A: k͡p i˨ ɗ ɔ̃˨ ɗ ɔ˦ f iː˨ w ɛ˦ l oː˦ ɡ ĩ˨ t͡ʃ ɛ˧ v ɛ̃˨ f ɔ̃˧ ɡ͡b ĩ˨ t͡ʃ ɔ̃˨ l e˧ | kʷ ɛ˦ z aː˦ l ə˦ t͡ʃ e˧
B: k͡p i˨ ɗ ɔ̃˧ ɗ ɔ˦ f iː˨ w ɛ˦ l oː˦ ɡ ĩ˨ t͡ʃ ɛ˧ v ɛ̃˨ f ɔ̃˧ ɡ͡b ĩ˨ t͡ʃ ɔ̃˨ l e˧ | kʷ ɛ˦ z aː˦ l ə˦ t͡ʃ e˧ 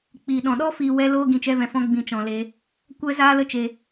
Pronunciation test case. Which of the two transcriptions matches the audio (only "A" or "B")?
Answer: A